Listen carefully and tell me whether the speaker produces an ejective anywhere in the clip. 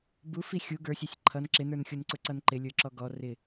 no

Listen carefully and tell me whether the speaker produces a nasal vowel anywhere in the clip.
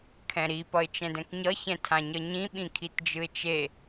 yes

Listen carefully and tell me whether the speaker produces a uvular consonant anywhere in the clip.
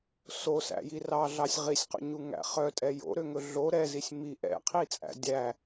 yes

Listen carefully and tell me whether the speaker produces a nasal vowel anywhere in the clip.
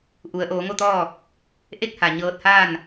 no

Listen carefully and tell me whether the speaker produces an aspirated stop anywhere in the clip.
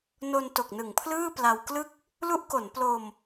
yes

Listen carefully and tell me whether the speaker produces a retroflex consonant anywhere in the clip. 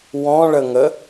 yes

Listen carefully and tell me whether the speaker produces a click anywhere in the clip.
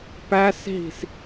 no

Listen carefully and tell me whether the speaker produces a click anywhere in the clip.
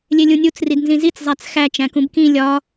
no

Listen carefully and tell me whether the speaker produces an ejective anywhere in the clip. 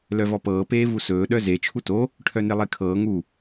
no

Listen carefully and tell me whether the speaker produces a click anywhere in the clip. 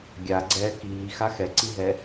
yes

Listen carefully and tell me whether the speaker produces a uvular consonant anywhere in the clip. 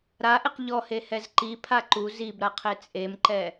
yes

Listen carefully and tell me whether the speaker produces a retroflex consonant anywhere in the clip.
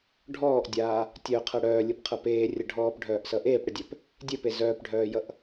yes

